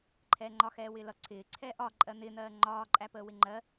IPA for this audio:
ǃʰ ɛː ŋ͡ǃ ɒ x ɛː w ɪː l ʌ ǀʰ ɪː ǀʰ ɛː ʔ ɒ ǃʼ ɜ n̪ ɪː n̪ ɜː ŋ͡ǃ ɒː ǃʼ æ p əː w ɪ ŋ͡ǃ ɜ

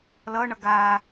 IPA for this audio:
l ʌː ɳ ʌ ɡ aː

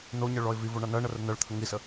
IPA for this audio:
n o ɲ ɜ ɭ ɔ ɪ̯ v i v o ɳ a n ɜ ɳ ɜ r ə n ɜ ɭ t̪ʰ ə ŋ i s ə

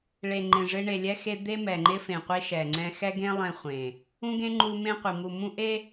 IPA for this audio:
ɭ e˨ ŋ͡ǃ ẽ˨ ʐ ɪ˦ ɳ e˨ lʲ ɛ˦ x e˦ d̪ e˦ m ɛ˨ ŋ͡ǃ ɪ˦ f ẽ˨ qʷ i˦ ʃ ɛ˨ ŋ͡ǀ ɛ̃˦ x ɛ˦ ɡ ẽ˦ lˠ ɛ̃˦ χʷ ẽ˨ | ũ˦ ɡ ẽ˦ ŋ͡ǃ u˦ m ẽ˦ qʷ i˨ m u˨ m ũ˦ ʔ e˦

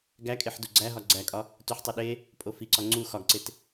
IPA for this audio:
ɡ æ kʼ e ħ d u ɡ͡ǀ æ ɦ ɒ ɡ͡ǀ æ kʼ ɒ | t u ħ tˤ o ɗ e | pʼ o f i ǀ ɒ ŋ͡ǀ u x ɒ ɡ ǀ e t

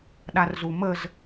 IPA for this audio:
ɗ a r z u m ə z

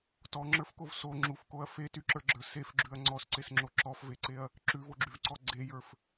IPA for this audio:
t ɔ ŋ͡ǁ ə˞ f k o v s o ŋ͡ǁ u f k o ɐ̯ f e t y ǁ ə˞ ɡ͡ǁ ə˞ s e f ɡ͡ǁ ʉ ɐ̯ ŋ͡ǀ ɔ s ǀ e s ŋ͡ǁ o ǁ ɔ f v e ǀ e ɐ̯ | ǁ ʉ v o ɡ͡ǁ y v ǀ ɔ ɡ͡ǀ e j ə˞ f

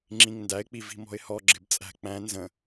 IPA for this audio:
ŋ͡ǁ ĩ ŋ n d æ ɪ̯ k͡p i v i̤ m ɔ̤ ɪ̯ h ɔ ɡ͡ǁ ɪ b t͡sʼ æ̤ k͡p æ̃ n z ə̃

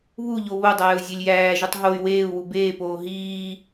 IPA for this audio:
β u ʎ o β o dˤ æː u̯ zʲ e lʲ j æː ʒ u tˤ ɦ o y̯ w eː u̯ w u b eː p oː ɦ iː

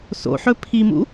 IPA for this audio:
s o̰ ħ ɵ pʰ i m ṵ

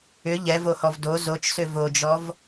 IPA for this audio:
ʏ ʎ ɛ v o h ɔ v d o z o t͡ʃ s ʏ v o d͡ʒ ɔ v

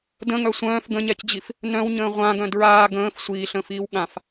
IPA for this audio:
d ə̃ ŋ œ sʷ œ̃ː f ɡ ə̃ ɲ ɛ c d͡ʑ i f | n œ̃ w ɲ ə̃ː ʁʷ ã ɡ œ̃ d ɹ aː ɡ ə̃ː f sʷ iː ɬ ə̃ː f iː w ɠ ã f

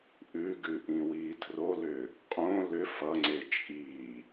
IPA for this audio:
ʔ ʉ ɡ ʉ ʔ ĩ w iː tʰ r o l ʏː | qʼ õ l ʏ f ʌ ŋ͡ǀ e t͡ʃʼ iː

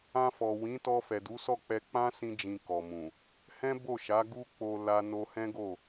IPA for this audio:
ã˧ f ɔ˨ w ĩ˨˦ t ɔ˧ f ɛ˨ d u˨˦ s ɔ˦˨ k͡p ɛ˧ k͡p ã˦ s ĩ˧ d͡ʒ ĩ˨ k ɔ˨ m ũ˨ | h ɛ̃˦ b o˦˨ ʃ a˨˦ ɡ u˦ k͡p o˧ l a˧ n o˧ h ɛ̃˦ ɡ o˦˨

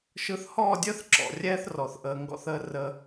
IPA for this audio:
ʃ ɯ˨ θ h ɔː˦˨ dʲ əː˦ θ ǁ ɔ̰˨ rʲ ɛː˦ θ r ɔ˨ θ ʔ əː˨ ŋ ɡ ɔ̰˦ θ əː˦ r ə˦

